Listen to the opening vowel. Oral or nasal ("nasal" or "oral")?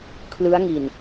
oral